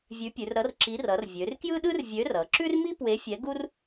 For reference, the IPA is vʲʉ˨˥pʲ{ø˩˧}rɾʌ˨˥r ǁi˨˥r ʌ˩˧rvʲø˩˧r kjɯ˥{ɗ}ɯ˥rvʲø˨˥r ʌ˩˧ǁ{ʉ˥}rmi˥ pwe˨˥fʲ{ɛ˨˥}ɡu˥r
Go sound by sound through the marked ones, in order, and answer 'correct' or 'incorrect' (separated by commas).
incorrect, correct, correct, correct